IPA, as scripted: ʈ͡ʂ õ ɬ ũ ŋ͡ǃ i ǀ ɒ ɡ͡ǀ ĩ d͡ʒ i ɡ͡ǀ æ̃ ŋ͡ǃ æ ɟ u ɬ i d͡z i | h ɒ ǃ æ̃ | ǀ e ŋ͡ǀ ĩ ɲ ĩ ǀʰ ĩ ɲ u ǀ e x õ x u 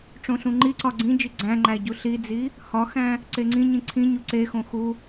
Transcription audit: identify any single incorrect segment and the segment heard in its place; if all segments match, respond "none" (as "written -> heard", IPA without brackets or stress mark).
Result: ǃ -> x